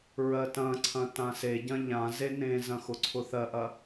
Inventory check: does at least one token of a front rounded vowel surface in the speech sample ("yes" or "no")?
no